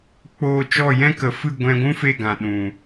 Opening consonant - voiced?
no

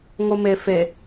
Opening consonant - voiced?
yes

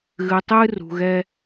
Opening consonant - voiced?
yes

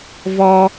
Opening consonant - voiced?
yes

